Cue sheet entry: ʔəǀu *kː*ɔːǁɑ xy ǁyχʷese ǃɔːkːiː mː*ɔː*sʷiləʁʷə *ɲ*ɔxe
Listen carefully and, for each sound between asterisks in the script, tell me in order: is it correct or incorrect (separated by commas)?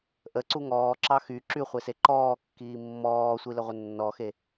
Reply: incorrect, correct, incorrect